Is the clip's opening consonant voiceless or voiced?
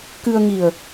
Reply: voiceless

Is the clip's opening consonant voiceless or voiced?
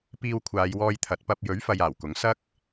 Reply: voiceless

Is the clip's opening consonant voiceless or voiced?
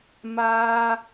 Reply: voiced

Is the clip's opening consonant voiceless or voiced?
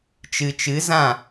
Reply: voiceless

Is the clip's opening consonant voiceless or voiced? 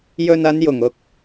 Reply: voiced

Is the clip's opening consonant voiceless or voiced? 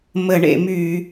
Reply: voiced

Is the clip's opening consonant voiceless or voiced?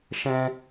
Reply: voiceless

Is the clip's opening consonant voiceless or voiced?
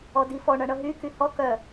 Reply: voiced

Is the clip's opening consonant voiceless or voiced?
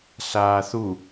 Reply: voiceless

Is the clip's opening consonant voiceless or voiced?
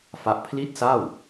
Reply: voiceless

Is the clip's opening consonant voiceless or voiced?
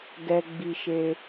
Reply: voiced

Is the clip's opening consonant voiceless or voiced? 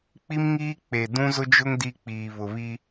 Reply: voiceless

